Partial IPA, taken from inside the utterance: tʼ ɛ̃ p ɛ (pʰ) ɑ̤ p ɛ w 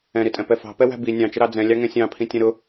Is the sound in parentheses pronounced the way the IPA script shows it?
no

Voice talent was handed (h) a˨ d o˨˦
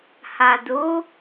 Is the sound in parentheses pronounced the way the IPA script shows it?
yes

